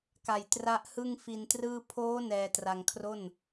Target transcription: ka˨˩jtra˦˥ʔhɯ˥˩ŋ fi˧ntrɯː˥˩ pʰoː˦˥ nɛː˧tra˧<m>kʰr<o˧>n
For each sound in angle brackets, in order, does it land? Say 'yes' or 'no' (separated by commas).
no, no